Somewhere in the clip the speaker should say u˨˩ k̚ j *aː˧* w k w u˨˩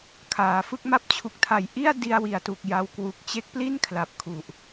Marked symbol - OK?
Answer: no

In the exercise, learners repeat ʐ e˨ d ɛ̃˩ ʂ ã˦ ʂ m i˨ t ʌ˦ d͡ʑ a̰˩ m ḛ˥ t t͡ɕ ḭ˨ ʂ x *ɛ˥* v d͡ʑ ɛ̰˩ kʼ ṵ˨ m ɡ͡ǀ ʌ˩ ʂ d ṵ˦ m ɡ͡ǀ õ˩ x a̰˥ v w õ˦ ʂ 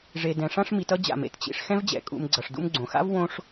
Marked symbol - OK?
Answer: no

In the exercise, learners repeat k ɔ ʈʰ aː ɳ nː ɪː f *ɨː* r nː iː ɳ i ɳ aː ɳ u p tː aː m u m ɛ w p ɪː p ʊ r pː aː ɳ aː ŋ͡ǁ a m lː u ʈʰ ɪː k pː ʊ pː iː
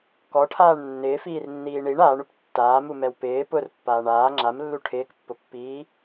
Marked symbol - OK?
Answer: no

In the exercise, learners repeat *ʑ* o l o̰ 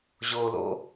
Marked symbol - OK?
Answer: yes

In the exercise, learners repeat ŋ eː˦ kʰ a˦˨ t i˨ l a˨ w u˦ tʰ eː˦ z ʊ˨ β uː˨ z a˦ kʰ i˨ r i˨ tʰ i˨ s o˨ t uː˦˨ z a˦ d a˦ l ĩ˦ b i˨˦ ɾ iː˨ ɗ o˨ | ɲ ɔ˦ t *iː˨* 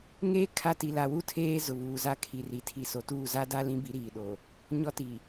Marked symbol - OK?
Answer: no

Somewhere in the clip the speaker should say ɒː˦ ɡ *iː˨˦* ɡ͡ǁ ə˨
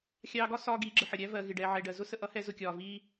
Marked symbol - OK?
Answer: yes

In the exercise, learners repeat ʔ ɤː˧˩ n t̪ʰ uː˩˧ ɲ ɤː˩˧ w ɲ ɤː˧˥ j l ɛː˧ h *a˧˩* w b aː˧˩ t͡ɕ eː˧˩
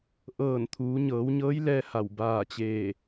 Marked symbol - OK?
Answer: yes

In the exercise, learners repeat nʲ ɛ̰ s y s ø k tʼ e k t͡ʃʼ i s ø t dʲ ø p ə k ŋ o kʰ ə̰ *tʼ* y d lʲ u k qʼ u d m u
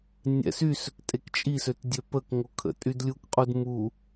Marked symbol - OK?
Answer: yes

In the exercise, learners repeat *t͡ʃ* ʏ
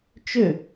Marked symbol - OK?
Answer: yes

